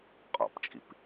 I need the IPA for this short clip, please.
qʼ ɔ̰ p t͡ʃʼ ḭ p

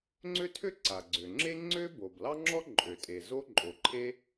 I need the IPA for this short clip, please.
ŋ͡ǀ ø˥ tʰ ø˥ ǀ a˩ ɡ͡ǀ ø˩ ŋ͡ǁ e˥ ŋ͡ǀ ø˥ b o˩ b l ɑ˥ ŋ͡ǁ ɔ˥ ǃʼ ø˩ tʼ e˩ z o˥ ǃʼ o˩ ǃʰ e˥

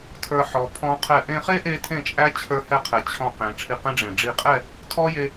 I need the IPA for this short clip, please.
tʰ ə˞˧ ħ ɔ˩˧ pʰ ɔ̃˦˥ qʰ ɛ˥˩ ʔ ẽ˧ χ e˦˥ ʔ e˧ tʰ ẽ˥˩ t͡ʃʼ æ˦˥ t͡ɕʰ ə˞˦˥ h ɛ˥˧ qʰ ɛ˩˧ t͡ɕʰ ɔ̃˧ q ẽ˩˧ ʈ͡ʂʰ i˧ q ẽ˦˥ ɖ͡ʐ ẽ˨˩ ɖ͡ʐ i˧ qʼ ɛ˥˧ | tʰ ɔ˦˥ j e˧

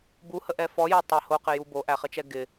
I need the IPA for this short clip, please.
b u h ə ʔ ɛ f ɔ j ɛ tˤ ɘ h o q ɪ j u b o ʔ æ χ ɘ t͡ʃ ɛ ɡ ɪ

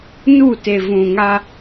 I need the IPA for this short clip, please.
n u˦˨ t e˨ v ũ˨ ŋ a˦

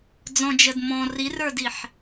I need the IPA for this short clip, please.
d͡z ɔ̃ d͡ʒ ə d m ɔ̃ r i r ə˞ d i ħ

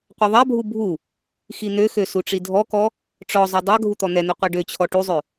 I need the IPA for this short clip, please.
qʷ ɛ ðˤ a bʱ u bʱ u | x i n̪ ø x ø s u ʈ͡ʂ i dʱ ɔ k ɔ | ʈ͡ʂ ɔ zˤ ø dˤ a ɡʱ u t̪ ɔ n̪ ɛ n̪ ø qʷ a ɖ ø t͡ɕʰ ɔ ʈ u zˤ ø

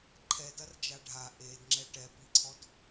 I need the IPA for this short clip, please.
ǃʰ ɛ d ɐ r d͡ʒ a ɖʱ a ʔ e d ŋ͡ǁ ɛ ʈ ɛ p i ǀʰ ɔ d

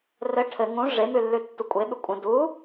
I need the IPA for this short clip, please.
r ɘ ʈʰ ɘ ŋ ũ ʐ e m ʉ lː ʉ tː u kʷʼ e ɓ ʉ kʷʼ ə̃ d u

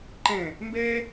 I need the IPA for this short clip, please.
ǃ ɛ̃ | m b ɛ

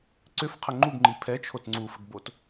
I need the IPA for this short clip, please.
ǀ ʏ f qʰ ə ŋ͡ǃ u ɡ ŋ͡ǃ i pʰ ɛ t͡ʃʰ o t ŋ͡ǀ u f ə ɡ b o t

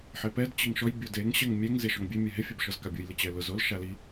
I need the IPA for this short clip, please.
ħ e p ɛ d t͡ɕ ɪ ŋ ʃ ɔ j bʲ o d e ŋ ɕ ɛ ŋ mʲ ɛ ŋ z e ʃ ɔ ŋ bʲ e mʲ ɛ ɦ ɪ fʲ a b ʃ ɔ z k a bʲ u j l ɪ t͡ɕ ɛ l ʊ z o l ʃ a l i

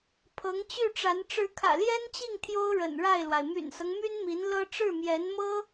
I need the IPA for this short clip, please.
pʰ ɤ˧˥ ŋ t͡ɕ y˥˩ ʈ͡ʂ a˧˥ n ʈ͡ʂ ɻ̩˧˥ kʰ ä̰˨˩ l j ɛ˥ n t͡ɕ i˥˩ ŋ t̪ʰ j o˥ ʊ̯ ɻ ə̰˨˩ n ɻ a˥˩ ɪ̯ l w a˩ ɪ̯ m y̰˨˩ n s ɤ˦ ŋ m y˥ n m i˧˥ n l ɤ˥ ʈ͡ʂ ɻ̩˥˩ m j ɛ˧˥ n m ɤ˥

